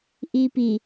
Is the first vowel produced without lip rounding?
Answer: yes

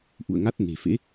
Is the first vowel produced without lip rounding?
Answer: no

